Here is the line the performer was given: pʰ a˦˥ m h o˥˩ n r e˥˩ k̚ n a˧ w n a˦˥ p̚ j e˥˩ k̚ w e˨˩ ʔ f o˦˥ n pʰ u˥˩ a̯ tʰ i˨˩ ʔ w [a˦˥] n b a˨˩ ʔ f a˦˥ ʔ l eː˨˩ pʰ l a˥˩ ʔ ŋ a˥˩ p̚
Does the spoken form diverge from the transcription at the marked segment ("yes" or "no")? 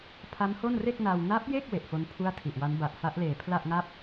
no